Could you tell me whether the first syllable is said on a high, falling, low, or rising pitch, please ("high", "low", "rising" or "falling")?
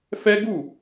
high